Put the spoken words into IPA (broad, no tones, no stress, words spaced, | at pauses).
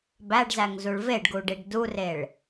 bæɖzæŋzuɭ veɖɡuɖiɖ dureɭ